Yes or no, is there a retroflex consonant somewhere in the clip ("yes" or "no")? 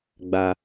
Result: no